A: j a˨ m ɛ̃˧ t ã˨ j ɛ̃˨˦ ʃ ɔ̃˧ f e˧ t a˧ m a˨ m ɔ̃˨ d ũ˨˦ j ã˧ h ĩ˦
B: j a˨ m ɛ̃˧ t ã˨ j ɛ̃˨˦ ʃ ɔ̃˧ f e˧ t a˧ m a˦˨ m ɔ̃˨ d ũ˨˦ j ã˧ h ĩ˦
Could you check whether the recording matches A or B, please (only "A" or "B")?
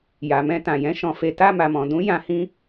A